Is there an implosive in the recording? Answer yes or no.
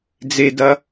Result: no